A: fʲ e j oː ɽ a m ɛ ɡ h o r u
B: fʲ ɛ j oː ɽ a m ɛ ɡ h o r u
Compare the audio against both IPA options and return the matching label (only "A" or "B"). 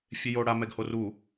A